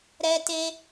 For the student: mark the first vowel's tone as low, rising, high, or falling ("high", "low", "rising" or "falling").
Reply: high